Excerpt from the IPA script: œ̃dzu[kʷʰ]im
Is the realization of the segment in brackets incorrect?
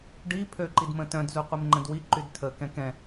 yes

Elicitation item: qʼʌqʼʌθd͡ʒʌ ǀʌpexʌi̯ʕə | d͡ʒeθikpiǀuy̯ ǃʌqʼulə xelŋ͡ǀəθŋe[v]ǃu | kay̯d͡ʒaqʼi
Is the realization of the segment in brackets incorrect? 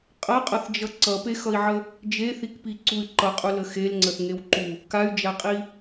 yes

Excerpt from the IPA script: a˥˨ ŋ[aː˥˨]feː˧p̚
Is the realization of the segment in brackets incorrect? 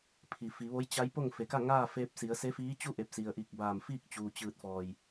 no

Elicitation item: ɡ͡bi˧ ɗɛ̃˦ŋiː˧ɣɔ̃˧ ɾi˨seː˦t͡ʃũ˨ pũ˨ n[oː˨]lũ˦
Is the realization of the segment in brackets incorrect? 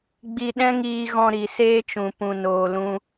yes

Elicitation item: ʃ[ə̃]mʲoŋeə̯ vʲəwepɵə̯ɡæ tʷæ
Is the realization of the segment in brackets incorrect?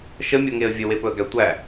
yes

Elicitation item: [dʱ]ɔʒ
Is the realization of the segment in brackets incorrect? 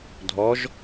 no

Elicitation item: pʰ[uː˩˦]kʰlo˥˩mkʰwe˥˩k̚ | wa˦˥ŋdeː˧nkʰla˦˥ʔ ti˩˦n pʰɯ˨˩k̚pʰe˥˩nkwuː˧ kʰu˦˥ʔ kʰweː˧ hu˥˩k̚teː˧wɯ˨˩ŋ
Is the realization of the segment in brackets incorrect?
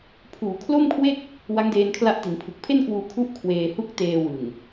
no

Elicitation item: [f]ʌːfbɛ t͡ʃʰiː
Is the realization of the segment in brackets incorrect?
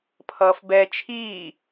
yes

